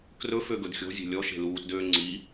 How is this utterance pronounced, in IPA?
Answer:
krɵfø ɡɵdxʲɔ̤zʲe̤ lʲɔʃe̤ luːtdøː ŋ͡ǀiː

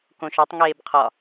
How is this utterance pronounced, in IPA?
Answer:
kõʃɒtˤ ŋeːbqʰɒ

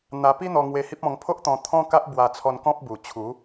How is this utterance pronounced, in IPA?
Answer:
n̪a˧pi˦ n̪ɔ˧ŋwe˧hi˦p̚ ɔ̃˧ŋpʰo˦ʔt̪ɔ̃˧ t̪ʰɔ̃˦ka˦ʔ bwa˧t͡sʰɔ˧n kɔ̃˦p̚bu˨˩t͡ɕʰu˨˦

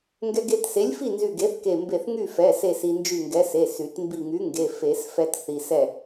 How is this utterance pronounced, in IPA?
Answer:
ŋɡɛ˧ɡe˧tse˨˥lʲfi˥˨ nzy˧˩ɡe˨˥θke˧˩ mbe˧˩θ ŋy˥˨fɛ˩˧˩ se˥˨si˧nd͡ʒy˥˨ ŋɡɛ˨˥se˩˧˩sy˨˩˦t mbi˧˩ŋy˨˥ŋɡe˩˧˩ fe˨˩˦sfɛ˧t θi˧sɛ˥˨

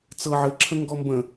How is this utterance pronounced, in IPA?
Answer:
t͡sɤ ʕɘǁʰə̃ ŋɡɔmbə̃

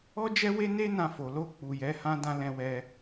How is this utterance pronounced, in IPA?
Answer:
ɔ˦d͡ʒɛ˦we˦ ne˦ nã˧fo˨ lo˧ k͡pu˨jɛ˨˦hã˦ dã˦lɛ̃˧wɛ˧

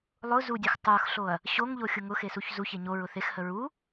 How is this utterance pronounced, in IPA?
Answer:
lˠʊ zudʲə˞x tˤə˞xɬoɐ̯ | ɕoŋʎoxʲʊ ŋʊxesuç zuçe ɲoɹʊ θexhə ɹu

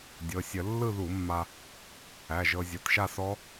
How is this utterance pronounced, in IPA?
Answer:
dʲɤ˩˧˩sʲə˧˩˧ lːɯ˥˧ðu˧˩˧mːa˧ | æ˩˧˩ʒɤ˧ zʲʌ˩˧˩tʃa˥˧sɔ˦˥

